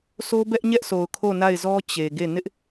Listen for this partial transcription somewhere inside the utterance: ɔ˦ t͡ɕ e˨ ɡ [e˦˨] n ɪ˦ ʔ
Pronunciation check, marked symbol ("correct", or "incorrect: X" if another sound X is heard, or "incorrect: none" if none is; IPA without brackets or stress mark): correct